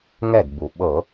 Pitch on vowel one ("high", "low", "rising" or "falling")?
falling